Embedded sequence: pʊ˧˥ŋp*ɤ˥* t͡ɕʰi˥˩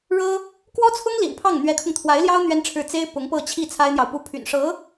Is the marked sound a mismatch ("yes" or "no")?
yes